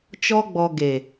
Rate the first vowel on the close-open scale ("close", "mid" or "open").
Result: mid